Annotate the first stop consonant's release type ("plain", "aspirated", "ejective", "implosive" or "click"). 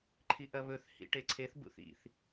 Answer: click